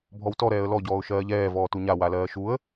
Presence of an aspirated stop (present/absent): absent